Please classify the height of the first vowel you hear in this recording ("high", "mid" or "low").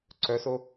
mid